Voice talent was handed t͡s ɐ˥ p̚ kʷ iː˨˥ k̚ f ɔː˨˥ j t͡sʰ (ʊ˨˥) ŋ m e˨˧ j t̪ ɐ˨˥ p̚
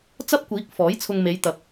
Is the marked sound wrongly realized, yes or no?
yes